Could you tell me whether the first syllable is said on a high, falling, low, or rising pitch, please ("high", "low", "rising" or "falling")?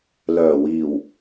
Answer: low